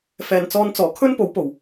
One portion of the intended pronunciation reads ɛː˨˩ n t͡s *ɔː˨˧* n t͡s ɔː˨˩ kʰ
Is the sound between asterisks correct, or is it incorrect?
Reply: correct